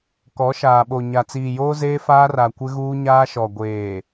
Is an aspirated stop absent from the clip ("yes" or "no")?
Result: yes